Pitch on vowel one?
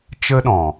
high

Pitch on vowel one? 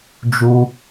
high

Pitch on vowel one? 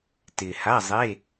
low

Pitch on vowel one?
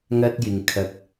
high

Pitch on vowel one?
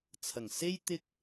low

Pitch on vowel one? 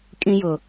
high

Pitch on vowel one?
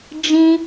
high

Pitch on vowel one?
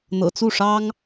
low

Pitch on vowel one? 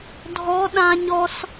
rising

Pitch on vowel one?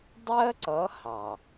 high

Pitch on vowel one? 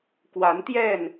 rising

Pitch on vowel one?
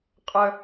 high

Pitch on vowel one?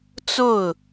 falling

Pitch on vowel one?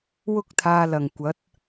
high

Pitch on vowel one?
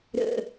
low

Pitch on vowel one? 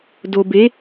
low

